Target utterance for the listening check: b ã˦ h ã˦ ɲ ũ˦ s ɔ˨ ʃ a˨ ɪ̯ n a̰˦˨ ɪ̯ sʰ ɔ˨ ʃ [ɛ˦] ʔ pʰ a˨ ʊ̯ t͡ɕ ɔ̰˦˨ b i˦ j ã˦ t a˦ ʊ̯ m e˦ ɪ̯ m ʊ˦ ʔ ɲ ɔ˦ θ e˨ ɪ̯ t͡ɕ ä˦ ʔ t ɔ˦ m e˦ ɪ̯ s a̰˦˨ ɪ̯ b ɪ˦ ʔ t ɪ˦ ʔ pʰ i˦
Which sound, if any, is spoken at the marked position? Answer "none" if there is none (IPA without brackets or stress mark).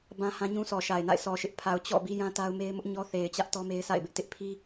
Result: ɪ˦